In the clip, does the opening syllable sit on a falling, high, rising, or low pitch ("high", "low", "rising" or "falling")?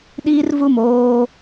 high